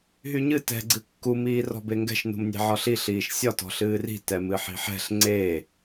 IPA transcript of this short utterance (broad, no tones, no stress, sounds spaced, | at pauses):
ɦ y ɲ ɨ t ɛ̤ ɡ͡ǀ ɨ kː u m iː r ɔ̤ b e ŋ ɡ ɛ̤ ʃ n ṳ m nʲ ɛ̤ ʕ ɒ ɬ i ɬ iː ʃ sʲ ɒ t ɔ̤ ɬ ɨː r i̤ t ɛ m ɨ ħ i̤ ħ ɛ̤ ɬ ŋ͡ǀ e